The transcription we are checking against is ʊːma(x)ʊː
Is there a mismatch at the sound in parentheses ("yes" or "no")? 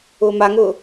yes